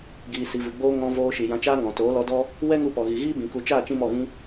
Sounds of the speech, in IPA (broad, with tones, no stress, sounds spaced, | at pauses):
ɡ iː˨ s i˨ v ɨ˨ ɡ͡b oː˦ ŋ ɔ̃˧ v oː˧ ʃ i˨ j ã˧ t͡ʃ aː˦ ŋ ɔ̃˨ t oː˨˦ l ɔ˧ d ɔ˦ | w ɛ˦ ŋ u˧ p ɔ˨ ɣ i˨ ɣ iː˦ b ĩ˨ k u˨ t͡ʃ aː˦˨ t͡ʃ ĩ˦ m ɔ˦˨ ɣ ĩ˦